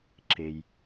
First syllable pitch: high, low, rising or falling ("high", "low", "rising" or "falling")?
low